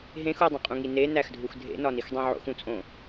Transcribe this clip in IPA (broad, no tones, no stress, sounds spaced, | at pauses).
ɦ ẽ x u dˤ ũ qʼ ũ ŋ i n e n æ x dʱ u x dʱ ḛ n ɒ n i x dˤ ẽ ʕ o̰ x ũ t͡sʼ õ